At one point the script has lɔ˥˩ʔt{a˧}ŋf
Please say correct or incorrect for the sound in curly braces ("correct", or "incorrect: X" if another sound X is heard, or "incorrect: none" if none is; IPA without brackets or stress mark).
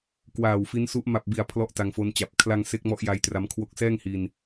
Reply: correct